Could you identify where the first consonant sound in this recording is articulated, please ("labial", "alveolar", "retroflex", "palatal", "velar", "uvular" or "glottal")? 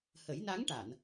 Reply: glottal